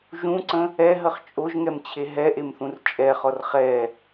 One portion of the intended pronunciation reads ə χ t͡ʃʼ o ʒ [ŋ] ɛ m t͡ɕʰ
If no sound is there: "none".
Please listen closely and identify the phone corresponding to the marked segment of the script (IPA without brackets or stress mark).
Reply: ŋ